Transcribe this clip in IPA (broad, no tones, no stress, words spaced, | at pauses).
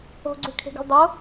o̤ɡ͡ǀʉkʰe̤ɡṳl dˤo